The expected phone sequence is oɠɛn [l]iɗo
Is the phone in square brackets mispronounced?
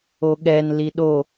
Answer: no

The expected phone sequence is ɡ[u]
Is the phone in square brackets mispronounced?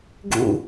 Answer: yes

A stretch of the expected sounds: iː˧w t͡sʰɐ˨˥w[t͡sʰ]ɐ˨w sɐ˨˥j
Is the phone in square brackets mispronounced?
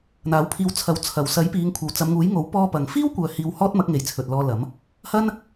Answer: no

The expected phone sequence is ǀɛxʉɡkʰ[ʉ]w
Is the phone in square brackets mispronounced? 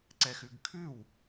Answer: no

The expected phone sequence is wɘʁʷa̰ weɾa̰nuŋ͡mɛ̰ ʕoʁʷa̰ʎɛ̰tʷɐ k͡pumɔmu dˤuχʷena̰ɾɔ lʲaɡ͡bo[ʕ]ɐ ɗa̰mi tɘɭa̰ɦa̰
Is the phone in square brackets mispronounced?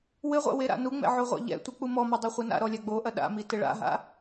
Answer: yes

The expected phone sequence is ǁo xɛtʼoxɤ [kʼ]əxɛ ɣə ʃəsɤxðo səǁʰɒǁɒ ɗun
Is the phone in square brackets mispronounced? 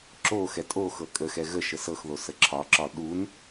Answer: no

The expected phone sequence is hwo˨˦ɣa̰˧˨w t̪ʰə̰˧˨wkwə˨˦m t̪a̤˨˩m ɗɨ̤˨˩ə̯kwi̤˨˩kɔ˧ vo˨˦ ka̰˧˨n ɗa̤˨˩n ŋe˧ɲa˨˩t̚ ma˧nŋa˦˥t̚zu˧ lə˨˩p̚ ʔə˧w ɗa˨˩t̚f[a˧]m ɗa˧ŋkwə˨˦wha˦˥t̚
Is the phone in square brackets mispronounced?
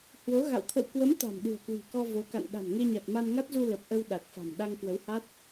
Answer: yes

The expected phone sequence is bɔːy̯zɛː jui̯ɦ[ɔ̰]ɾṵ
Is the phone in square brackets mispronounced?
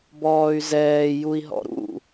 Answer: no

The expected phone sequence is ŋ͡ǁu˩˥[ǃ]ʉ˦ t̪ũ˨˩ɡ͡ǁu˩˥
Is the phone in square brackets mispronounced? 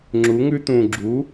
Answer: yes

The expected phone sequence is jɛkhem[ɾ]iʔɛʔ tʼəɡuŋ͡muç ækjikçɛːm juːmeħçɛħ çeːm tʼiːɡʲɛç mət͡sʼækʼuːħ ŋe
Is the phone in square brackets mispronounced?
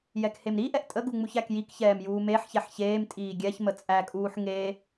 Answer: no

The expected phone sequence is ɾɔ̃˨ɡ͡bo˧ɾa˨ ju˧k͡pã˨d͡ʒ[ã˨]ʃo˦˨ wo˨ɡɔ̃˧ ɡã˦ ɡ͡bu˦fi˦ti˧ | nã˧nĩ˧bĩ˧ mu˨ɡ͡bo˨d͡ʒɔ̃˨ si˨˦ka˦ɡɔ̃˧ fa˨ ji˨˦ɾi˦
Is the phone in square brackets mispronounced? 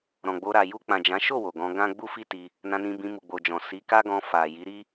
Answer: yes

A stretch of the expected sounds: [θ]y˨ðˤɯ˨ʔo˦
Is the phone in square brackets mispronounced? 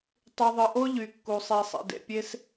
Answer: yes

